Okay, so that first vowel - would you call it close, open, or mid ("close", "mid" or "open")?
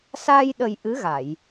open